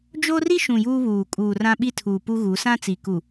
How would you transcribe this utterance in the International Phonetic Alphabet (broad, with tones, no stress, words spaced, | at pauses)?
d͡ʒo˦ri˦ ʃũ˨ juː˦βuː˨ kʼuː˨rã˦ɓi˦tʰuː˨ pu˦ɣu˨˦ sã˦t͡si˨ku˨